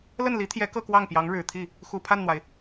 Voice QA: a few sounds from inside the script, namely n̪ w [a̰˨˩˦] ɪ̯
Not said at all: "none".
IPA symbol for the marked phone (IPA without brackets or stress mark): a˩